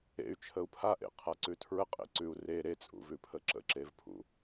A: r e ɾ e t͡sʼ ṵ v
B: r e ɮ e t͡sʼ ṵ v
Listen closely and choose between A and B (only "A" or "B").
A